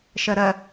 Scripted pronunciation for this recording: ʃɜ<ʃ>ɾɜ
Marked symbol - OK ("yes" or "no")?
no